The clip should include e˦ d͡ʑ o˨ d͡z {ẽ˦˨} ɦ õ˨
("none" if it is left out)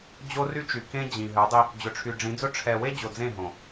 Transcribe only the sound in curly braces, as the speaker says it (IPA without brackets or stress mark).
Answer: ẽ˦˨